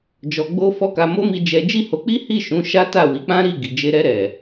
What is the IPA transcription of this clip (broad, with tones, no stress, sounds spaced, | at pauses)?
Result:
d͡ʒ ɔ˧ ɡ͡b o˦ f ɔ˦ k a˧ m o˦ m i˧ d͡ʒ ɛ˧ d͡ʒ i˦ h o˧ k͡p i˦ h i˦˨ ʃ ũ˨˦ ʃ a˦ t a˦˨ w i˨˦ k͡p ã˦ ɾ i˦˨ ɡ i˨ d͡ʒ e˧ ɾ ɛ˧ ɾ ɛ˨